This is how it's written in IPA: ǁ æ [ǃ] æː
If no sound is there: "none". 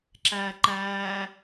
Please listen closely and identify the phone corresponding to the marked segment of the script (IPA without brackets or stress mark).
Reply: ǃ